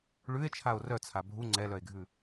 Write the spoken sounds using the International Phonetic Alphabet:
ɭ ʉ e̯ t͡ʃʰ a o̯ r œ t͡sʰ a bʱ u ŋ͡ǀ ɛ l œ e̯ ɡʱ ʉ

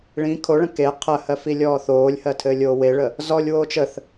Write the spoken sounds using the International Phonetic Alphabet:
ɭ ĩ kʰ o ɭ ə̃ k e qʰ ɜ h ɜ f i lʲ ɔː θ oː lʲ h ɜ tʰ ɘː lʲ oː w e ɭ ə | z ɔ lʲ w oː t͡ʃ ə θ

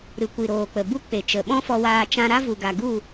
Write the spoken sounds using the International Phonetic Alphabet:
ɾ ɨ˨ kʷ i˨ ɾ oː˨ k͡p ə˨ b u˦ k͡p e˨ t͡ʃ ə˨ ɓ ɔ̃˦ f ɔ˧ w aː˧ t͡ʃ ã˧ ɾ a˦ v u˨ ɡ a˨ ɡ u˦˨

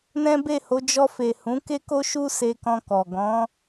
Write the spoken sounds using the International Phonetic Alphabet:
n ɛ̃˦ b e˦˨ h o˨˦ d͡ʒ ɔ˧ f e˨ h ũ˨˦ k e˦ k o˦ ʃ u˦ s e˧ k ɔ̃˧ k ɔ˨ ɡ ɔ̃˨˦

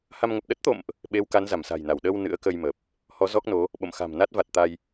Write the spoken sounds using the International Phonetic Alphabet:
h a˧ m ŋ ə˨˩ p̚ ɗ ə˦˥ t̚ t̪ o̰˧˨ m ʔ | ɓ e˨˦ w k a˨˦ n z a˧˩ m s a̤˨˩ j n a˧˩ w ɗ ə˧ w n ɨ̰˧˥ ə̯ k ə˧ j m ə˨˩ p̚ | h ɔ˨˦ z ɔ˦˥ k̚ n o˨˦ | ɓ o̰˧˨ m x a̤˨˩ m n a˦˥ t̚ v a˨˩ t̚ t̪ a˧ j

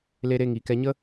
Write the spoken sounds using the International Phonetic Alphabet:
l e˧ ɾ e˧ ŋ iː˨ k ɛ˧ ɲ ə˦

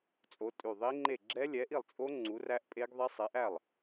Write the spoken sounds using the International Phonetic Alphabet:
t͡sʼ o˨˥ tʼ ʉ˧˩ ðˤ i˦˥ ŋ͡ǃ e˥˩ ɡ͡ǁ ɛ˦˥ lʲ ɛ˨˥ ʔ i˥˩ lˠ t͡sʼ o˦˥ ŋ͡ǀ u˨˥ r æ˦˥ ʔ pʼ e˦˥ ɡ ðˤ ɛ˦˥ sˤ ɛ˨˥ ʔ æ˥˩ lˠ

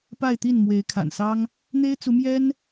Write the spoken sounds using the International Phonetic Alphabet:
p a˥˧ ɪ̯ t̪ i˥˩ n m w e˧˥ ɪ̯ kʰ a̰˨˩ n s ɑ˥ ŋ | n̪ e˥ ɪ̯ t͡s u˧˥ m j ɛ˥ n

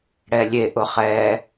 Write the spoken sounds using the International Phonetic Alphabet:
ɽ ɛ lʲ e ʔ ʊ χ ɛ

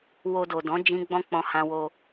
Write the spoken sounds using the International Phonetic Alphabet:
w o˧ d o˨ d ɔ̃˨˦ d͡ʒ ĩ˦ ɡ͡b ɔ̃˦ k͡p ɔ̃˧ h ã˧ w o˧

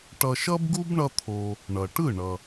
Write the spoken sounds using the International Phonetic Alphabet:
ʈ ʌ˧ ʃ ʌ˥ b ɡ u˥ b ɳ ʌ˥ t̪ʰ o˧ | ɳ ʌ˩ ʈ ɯ˥˩ ɳ ʌ˩

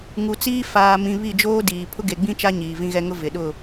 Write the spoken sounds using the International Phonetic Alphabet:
ŋ u˨ t͡s iː˦ f aː˨ m ĩ˨ β i˦˨ d͡ʒ oː˦ d iː˨ pʰ ʊ˦ ɡ e˨ ɡ͡b ĩ˦ t͡ʃ a˦ ɲ iː˨ v ĩ˦ ɣ ɛ˦ ŋ ʊ˦ v ɪ˨ ɗ ʊ˦˨

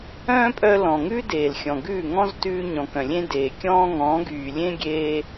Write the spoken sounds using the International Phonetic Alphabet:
œ̃ː˦ pʼ œ˧ l ɔ̃˨ ŋ ʉ˦ d eː˨ l xʲ ɔ̃˨ ɡ ʉː˦˨ ŋ ɔ̃˦ z t ʉː˧ ɲ ɔ̃˨ k œ̃˨ lʲ ẽ˦ d eː˨ kʲ ɔ̃ː˦ ŋ ɔ̃ː˨˦ ɡ yː˨ lʲ ẽ˦ ɡʲ eː˧

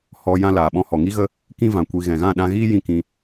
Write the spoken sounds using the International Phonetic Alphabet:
h ɔ˧ j ã˧ l aː˨ ɓ ɔ̃˧ h ɔ˨ ŋ i˦ ɣ ə˦ | k ĩ˦ v ã˨ kʷ i˧ ɣ ɛ̃˨ ɣ ã˦˨ ɗ ã˧ ɣ iː˦ j ĩ˧ k ĩ˧

